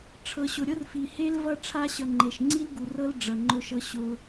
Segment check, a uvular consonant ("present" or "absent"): absent